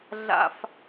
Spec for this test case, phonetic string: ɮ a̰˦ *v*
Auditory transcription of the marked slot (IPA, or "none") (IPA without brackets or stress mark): f